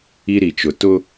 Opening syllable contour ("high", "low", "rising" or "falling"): high